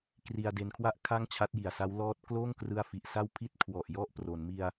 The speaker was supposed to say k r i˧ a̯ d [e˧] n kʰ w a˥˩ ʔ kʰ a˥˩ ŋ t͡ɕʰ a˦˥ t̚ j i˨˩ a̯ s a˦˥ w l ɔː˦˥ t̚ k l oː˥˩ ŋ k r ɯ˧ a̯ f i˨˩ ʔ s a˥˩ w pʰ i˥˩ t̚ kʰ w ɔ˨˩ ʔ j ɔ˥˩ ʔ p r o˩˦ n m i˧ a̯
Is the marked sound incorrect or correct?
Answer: correct